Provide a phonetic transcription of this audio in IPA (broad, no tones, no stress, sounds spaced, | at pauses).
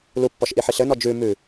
l u pː ɔ ʃ ʔ i ħ i ɬ ɘ n ɔ d͡ʒ ʉ m ʉ